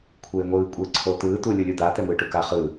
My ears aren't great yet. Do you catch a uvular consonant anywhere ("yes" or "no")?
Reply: yes